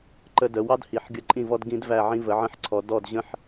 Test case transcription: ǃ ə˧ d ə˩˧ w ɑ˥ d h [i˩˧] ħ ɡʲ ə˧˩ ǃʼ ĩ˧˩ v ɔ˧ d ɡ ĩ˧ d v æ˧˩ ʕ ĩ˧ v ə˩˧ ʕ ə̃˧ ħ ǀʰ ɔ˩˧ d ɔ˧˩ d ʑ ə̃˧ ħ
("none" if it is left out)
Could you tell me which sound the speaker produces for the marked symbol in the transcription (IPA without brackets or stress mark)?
i˩˧